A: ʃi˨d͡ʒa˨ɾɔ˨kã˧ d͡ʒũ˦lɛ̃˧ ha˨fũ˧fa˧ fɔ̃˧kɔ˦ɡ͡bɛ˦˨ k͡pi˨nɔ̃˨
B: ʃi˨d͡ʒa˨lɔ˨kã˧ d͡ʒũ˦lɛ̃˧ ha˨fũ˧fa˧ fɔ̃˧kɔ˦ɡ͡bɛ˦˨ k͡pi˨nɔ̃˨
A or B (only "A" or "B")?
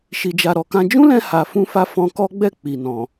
A